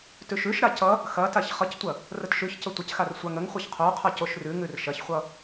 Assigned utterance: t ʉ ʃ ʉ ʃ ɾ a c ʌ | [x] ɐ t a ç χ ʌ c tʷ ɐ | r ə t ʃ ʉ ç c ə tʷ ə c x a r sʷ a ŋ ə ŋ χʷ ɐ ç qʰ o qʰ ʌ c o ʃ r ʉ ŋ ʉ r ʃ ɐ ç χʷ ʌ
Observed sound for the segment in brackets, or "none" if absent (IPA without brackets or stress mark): x